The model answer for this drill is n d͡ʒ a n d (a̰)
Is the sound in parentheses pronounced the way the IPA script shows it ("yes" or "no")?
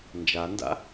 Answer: yes